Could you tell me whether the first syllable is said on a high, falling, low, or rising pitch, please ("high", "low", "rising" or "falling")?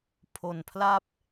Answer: low